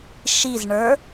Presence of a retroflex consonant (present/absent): present